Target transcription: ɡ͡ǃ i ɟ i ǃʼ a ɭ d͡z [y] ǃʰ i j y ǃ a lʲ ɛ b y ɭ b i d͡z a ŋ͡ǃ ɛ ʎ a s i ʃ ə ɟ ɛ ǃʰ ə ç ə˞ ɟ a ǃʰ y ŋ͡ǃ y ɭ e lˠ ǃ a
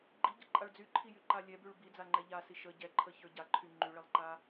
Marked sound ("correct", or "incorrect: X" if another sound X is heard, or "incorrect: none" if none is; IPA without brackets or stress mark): correct